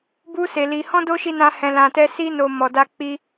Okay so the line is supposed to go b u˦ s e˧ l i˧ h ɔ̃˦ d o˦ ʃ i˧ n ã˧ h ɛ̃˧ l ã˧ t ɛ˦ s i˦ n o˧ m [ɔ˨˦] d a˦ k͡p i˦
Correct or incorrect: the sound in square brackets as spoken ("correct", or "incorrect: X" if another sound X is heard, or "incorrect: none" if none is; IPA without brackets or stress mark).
incorrect: ɔ˧